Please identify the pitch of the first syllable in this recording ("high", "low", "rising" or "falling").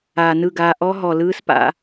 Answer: low